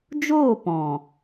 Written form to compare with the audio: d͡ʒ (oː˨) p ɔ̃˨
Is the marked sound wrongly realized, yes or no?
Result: yes